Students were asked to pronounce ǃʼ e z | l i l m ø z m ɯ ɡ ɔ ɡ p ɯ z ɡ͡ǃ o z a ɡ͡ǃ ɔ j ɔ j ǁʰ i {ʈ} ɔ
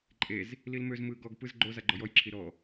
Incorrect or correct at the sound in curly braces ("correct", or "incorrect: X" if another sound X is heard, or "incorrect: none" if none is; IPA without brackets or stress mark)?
incorrect: ɾ